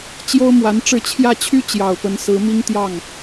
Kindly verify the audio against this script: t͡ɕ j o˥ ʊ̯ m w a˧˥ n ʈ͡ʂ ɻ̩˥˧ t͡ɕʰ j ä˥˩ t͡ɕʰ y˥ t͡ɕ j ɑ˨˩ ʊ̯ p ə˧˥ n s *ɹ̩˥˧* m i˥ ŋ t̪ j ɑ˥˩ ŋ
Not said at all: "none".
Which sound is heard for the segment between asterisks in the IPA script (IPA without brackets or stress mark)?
ɹ̩˧˥